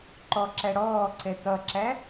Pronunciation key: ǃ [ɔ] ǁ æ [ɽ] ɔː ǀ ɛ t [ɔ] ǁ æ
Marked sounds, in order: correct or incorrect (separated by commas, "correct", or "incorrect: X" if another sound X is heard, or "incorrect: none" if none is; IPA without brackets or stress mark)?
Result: correct, correct, incorrect: ʌ